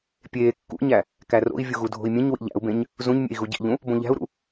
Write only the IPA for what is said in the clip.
pʲeː kːṵɲæ | kæro̰i̯ vʲuɣudʱo̤i̯mʲẽɲ wḭʎæ̰u̯bẽɲ | zũɲmʲḛi̯ ɣuɟḭʎũ | bõʎæ̤u̯ɾṵ

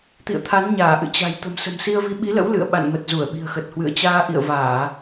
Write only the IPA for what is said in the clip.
t̪ḭ˧˨ə̯t̪ʰa˨˦nɲaː˧˩ ʔɨ̰˧˨t͡ɕa̤˨˩j t̪ə̤˨˩msə̤˨˩msi˧ə̯vi˨˦ ɓi˨˦lə̰˧˥w lɨ̰˧˨ə̯ɓa̰˧˨nmə˨˩t̚ zu˧˩ə̯ɓi̤˨˩ə̯xə˨˩t̚hwɨ̰˧˨ə̯ t͡ɕaː˧ ʔḭ˧˨ə̯vaː˧˩˨

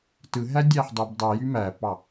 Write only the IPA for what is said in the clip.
tɯɦæ dʲæħdˤibdˤɯjy mæpɑ

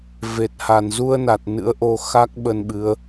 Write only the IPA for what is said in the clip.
ve˨˩t̚ha˧˩n zu˧ə̯na˨˩t̚ nɨ̰˧˥ə̯ʔo˧ xa˦˥k̚ ɓə˧nɓɨ˨˦ə̯

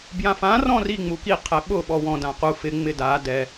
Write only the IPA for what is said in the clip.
bjãfã rɔ̃ri ŋ͡muki qʰɛɓʊ ɓɔwɔ̃ dãqu fɪ ŋ͡mɪda dɛ

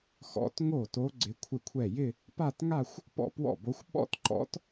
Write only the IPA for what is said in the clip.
xɔ̰˧˥t ŋo˥˩to˧˥ ɡ͡ǀɪ˧˥kʷʰɪ˥˩kʷʰɛ˥˩ jɪ˥˧ | pa˥˧tŋa˥˧xʷ | pɔ̰˥˩pwɔ̰˥˩bo˧˥xʷ ɓɔ̰˥˩tǃɔ̰˧˥t

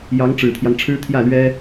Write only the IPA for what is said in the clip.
jɑ˧˥ŋ ʈ͡ʂɻ̩˨˩t̪ʰjɑ˦ŋ ʈ͡ʂʰɻ̩˥t̪ʰjä˥˩lɥɛ˥

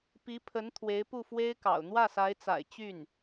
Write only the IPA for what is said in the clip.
pi˧˥pʰə˧˥n t̪ʰwe˧˥ɪ̯pu˥˩fwe˥ɪ̯kɑ̰˨˩ʊ̯ n̪wä˥˩sa˧˥ɪ̯t͡sa̰˨˩ɪ̯ t͡ɕy˥˩n

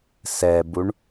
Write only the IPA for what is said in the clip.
sɛbuɳ

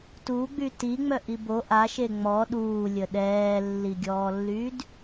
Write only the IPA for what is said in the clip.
tuɡ͡by tiŋ͡mœʔi bo ʔaʃe ŋ͡mɔ ɗuːlʲə ɗɛːlːiɡʲɔːlːyd

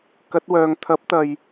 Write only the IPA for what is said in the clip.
kɐ˨˥t̚wœː˨ŋ t̪ʰɐ˨˥p̚t̪ɐ˨j

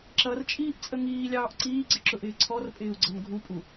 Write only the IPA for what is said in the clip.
ǁʌrt͡ʃʼiːʔt͡sʼə ŋiːlʲɑːʔ ǀiːɡ͡ǀɪǁʊʔɪː ǀʰɔrpʼɪːu̯ɡ͡ǀʌn ɡʱupʼu

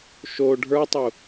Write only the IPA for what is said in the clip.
ʃo ɖʱə˞tˤu

